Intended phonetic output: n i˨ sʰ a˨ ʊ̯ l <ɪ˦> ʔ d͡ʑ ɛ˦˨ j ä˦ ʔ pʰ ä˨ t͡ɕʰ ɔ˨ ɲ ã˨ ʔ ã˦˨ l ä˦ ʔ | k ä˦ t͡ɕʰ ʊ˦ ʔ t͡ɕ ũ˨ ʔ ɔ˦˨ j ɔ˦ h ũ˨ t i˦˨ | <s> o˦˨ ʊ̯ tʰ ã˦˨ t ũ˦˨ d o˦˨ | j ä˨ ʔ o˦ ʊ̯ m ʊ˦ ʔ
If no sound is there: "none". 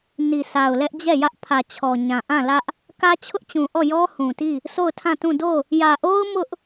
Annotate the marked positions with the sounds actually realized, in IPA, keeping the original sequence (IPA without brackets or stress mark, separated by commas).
ɛ˦, s